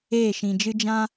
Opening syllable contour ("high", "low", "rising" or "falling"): falling